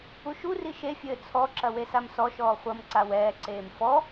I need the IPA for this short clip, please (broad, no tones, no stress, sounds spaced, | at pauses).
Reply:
u ʃ u r i ʃ e fʲ ɘː t͡sʰ ɔ ǁ ɐ w e s a m s ɔ ʃ ɔː χʷ ɐ m ǀ a w ɛː ǀ eː m f ɔ